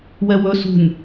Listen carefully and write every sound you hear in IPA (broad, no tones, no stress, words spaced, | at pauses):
wɛwɵ sṳnʲ